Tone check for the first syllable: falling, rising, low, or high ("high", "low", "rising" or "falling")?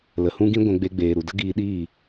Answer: low